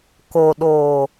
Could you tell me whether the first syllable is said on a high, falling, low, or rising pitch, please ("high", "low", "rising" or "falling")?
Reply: low